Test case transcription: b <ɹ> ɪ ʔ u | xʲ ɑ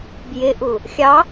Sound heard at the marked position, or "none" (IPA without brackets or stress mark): j